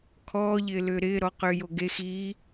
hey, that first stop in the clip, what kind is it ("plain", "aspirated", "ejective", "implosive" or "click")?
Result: aspirated